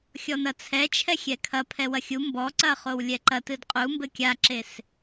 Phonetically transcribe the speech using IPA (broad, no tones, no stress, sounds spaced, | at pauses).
xʲ ɔ n ɐ t͡sʰ ɛ t͡ʃʰ ɛ xʲ ɛ kʰ ɐ pʰ ɛ w ɐ xʲ u m b ɔ ǀ ɐ χ o w lʲ ɛ ǃ ɐ t ɨ d qʼ u m b ɘ kʲ a ǁ e s